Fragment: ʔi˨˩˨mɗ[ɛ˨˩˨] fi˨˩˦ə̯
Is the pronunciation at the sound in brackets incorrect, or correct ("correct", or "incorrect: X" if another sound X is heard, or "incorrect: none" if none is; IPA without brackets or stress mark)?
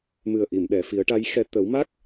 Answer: correct